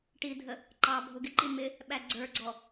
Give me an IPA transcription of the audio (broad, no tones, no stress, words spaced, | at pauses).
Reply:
ʈidʱə | ǃɑbʱʊ ɡɪǃi mɪ | ɓæɡ͡ǀə˞ɡ͡ǀɔ